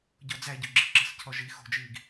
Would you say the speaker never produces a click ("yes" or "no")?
no